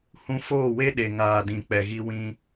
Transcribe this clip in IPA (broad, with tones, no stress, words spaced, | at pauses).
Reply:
hũ˧foː˦˨we˦ɗe˨ ŋaː˨dĩ˨ k͡pɛ˨ɣi˧ wĩ˦